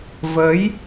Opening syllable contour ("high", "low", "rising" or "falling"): rising